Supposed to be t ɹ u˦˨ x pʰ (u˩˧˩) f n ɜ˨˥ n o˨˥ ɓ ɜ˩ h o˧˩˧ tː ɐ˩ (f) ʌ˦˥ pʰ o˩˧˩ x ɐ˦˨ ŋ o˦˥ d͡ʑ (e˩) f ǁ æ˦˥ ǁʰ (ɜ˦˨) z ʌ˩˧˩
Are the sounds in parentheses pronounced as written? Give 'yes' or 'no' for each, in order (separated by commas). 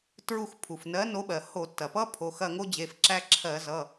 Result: no, no, no, no